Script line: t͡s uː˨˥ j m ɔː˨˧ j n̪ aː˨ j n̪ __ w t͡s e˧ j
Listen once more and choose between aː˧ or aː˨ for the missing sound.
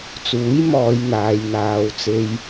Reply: aː˧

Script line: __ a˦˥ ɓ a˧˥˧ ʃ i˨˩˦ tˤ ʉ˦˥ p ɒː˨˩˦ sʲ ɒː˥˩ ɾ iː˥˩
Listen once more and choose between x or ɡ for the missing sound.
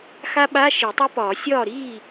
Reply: x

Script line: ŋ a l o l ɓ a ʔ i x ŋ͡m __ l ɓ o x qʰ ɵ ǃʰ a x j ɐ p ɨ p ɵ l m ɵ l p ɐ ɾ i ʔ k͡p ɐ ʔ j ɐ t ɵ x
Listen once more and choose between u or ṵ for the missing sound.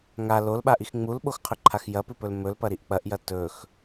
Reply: u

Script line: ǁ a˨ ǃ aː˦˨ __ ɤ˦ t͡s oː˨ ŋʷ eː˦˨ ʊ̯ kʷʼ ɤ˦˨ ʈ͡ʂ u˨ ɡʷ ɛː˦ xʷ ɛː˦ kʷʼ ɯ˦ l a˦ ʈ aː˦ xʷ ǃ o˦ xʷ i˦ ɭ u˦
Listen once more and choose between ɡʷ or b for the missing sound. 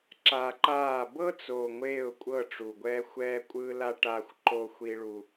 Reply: b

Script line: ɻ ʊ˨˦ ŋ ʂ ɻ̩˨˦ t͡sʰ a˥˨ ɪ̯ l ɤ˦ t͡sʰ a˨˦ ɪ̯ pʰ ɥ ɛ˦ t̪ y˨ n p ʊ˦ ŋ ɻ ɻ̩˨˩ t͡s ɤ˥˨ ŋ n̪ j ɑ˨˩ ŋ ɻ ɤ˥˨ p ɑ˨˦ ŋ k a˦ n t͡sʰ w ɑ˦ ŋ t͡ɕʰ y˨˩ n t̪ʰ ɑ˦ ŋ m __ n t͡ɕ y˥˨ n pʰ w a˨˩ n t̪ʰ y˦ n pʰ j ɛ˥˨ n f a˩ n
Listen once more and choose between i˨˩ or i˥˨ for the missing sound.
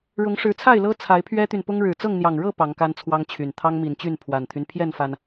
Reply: i˨˩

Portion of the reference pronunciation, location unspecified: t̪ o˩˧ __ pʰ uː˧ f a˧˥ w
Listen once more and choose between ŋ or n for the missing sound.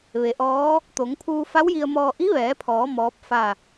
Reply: ŋ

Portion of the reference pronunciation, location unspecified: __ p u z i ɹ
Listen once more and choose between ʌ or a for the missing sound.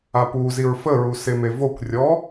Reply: a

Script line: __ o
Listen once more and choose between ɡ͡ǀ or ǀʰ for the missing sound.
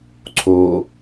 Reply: ǀʰ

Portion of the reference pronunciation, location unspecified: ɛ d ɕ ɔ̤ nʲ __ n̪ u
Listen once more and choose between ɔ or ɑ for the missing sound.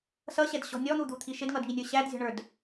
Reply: ɔ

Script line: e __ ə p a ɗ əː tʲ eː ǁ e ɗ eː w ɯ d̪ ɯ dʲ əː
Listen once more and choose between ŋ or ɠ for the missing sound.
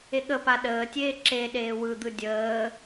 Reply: ɠ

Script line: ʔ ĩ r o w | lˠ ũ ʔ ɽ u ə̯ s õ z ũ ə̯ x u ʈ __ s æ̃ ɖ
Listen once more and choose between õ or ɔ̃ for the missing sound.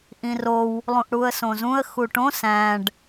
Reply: õ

